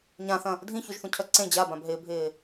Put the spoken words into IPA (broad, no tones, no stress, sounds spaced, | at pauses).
ɲ ã θ ɐ̃ | dʱ ĩ ç u ʒ θ ũ cʰ œ ǀ ẽ d͡ʑ a b ã b ɦ ɪː bʱ ɪː